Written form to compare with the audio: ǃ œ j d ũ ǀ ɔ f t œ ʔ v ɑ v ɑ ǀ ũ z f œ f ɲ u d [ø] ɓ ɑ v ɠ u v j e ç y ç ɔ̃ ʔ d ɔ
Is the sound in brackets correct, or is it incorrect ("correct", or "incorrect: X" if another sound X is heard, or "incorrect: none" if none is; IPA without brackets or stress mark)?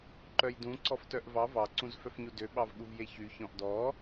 correct